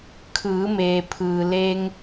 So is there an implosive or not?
no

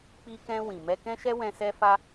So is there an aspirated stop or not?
no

